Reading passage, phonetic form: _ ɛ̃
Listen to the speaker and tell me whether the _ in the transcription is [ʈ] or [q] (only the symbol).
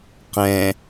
q